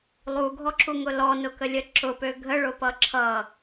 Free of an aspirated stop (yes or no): no